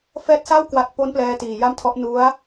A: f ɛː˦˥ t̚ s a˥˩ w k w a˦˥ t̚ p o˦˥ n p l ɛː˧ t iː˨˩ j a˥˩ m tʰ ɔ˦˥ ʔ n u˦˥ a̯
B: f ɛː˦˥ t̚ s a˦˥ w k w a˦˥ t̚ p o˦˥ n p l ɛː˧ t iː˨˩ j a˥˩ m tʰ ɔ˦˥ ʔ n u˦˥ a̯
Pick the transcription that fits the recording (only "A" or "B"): A